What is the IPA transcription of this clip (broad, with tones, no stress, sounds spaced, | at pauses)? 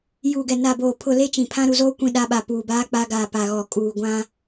j uː˨ ɡ ɛ˨ n a˨ b oː˨ pʰ ʊ˨ l e˦ t͡ʃ ĩ˨ pʰ ã˦ ɾ u˨ z oː˦ kʷ ĩ˦ ɗ a˦ ɓ a˨ p uː˨ b aː˦ k͡p a˦ ɡ aː˨ p a˨ ɣ ɔ˨ kʼ uː˨ ɡʷ ã˦